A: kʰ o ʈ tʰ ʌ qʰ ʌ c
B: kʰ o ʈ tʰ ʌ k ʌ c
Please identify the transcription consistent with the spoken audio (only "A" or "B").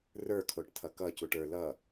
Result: B